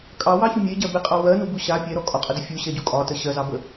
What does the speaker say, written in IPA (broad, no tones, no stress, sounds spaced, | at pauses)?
kʼ ɑ w ɑ ç u mʲ e ɟ ɜ b e qʼ ɑ w ɜ n u b u ɕ a pʲ ɛ ɾ ɔ kʼ ɒ qʼ ə d ə fʲ u ɕ ɛ ɟ u kʼ ɒ t ə ɕ ɜ z ɑ b ə